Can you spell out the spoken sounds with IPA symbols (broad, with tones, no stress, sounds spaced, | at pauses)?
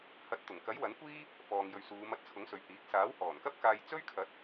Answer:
h ɐ˨˥ t̚ t̪ ʊ˨˩ ŋ k ɐ˨˥ j w ɐ˨˥ n kʷ iː˥ | f ɔː˨ ŋ j ɵ˨ ɥ s uː˨˧ m ɐ˧ t̚ t͡sʰ ʊ˨˥ ŋ s ɵ˨ ɥ h iː˨˥ k̚ s aː˨˥ w h ɔː˨˩ n k ɐ˥ p̚ k aː˧ j t͡s ɵ˥ ɥ kʰ ɐ˨˥ t̚